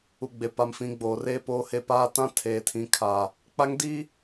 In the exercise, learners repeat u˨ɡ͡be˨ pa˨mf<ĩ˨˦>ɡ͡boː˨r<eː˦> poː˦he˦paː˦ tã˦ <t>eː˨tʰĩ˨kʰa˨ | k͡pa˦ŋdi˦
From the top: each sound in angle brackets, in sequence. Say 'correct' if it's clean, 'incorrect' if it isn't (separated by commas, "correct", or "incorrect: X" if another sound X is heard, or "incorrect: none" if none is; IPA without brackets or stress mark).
correct, correct, incorrect: tʰ